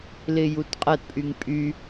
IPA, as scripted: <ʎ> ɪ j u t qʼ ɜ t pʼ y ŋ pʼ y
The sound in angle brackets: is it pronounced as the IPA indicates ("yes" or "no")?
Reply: no